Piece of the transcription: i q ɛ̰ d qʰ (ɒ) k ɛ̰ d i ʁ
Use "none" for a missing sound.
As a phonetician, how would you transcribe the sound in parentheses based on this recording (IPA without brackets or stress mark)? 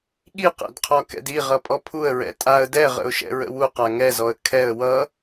ɒ